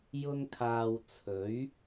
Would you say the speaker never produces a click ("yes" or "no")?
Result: yes